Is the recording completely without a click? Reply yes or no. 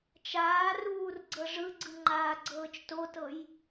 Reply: no